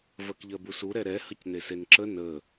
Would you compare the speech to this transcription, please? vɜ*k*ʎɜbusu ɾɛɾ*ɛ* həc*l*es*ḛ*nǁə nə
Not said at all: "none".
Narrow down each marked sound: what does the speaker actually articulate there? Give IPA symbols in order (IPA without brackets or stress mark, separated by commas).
k, ɛ, n, e